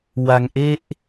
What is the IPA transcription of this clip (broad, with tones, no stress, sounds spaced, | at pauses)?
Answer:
w a˧ ŋ ʔ e˦˥ ʔ